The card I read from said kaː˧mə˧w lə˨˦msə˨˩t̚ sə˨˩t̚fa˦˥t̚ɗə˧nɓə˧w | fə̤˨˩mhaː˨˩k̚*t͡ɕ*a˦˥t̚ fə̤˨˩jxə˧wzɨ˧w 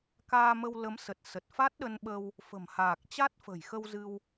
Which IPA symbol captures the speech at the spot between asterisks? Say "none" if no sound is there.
t͡ɕ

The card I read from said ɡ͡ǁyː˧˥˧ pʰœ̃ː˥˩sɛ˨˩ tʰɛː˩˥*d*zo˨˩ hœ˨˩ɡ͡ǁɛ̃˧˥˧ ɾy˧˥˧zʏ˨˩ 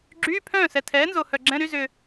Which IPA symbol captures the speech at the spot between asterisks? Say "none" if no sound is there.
n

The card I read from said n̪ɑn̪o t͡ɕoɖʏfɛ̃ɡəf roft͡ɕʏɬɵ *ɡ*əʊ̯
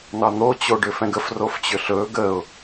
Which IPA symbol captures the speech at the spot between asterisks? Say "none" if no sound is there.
ɡ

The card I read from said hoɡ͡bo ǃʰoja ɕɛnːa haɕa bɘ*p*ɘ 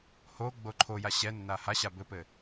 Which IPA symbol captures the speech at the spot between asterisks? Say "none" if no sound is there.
p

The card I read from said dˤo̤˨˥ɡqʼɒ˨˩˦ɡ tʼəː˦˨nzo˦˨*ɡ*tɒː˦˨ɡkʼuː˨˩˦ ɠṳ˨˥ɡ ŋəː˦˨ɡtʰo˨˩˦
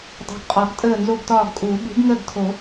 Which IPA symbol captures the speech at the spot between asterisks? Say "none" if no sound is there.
ɡ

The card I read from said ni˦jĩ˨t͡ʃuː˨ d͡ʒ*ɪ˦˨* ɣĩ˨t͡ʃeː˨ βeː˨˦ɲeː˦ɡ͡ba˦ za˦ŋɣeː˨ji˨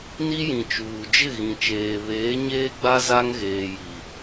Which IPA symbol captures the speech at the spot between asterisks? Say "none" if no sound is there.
ɪ˦˨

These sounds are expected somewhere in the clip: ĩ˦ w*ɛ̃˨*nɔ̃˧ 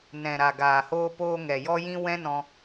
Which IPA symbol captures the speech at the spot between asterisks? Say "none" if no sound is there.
ɛ̃˦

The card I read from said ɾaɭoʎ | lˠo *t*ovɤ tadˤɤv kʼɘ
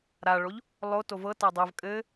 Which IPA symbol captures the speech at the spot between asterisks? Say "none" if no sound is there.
t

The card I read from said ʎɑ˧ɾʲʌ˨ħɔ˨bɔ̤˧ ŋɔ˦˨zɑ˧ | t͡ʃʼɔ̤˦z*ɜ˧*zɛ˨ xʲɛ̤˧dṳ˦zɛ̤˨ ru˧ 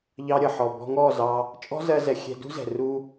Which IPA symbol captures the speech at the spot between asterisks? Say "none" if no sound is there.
ɜ˧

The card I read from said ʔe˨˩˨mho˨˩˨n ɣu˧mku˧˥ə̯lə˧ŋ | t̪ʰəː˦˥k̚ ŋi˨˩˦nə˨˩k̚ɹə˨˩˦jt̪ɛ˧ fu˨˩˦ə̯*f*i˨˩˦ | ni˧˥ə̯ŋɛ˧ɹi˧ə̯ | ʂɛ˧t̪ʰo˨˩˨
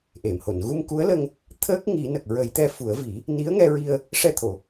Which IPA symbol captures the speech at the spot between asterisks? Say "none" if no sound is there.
v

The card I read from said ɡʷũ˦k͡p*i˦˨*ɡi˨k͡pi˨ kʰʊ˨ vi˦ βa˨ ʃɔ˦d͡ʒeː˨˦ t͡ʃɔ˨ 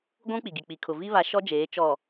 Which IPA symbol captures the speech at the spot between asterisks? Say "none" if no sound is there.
i˨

